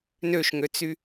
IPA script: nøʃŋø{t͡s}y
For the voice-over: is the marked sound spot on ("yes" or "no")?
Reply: yes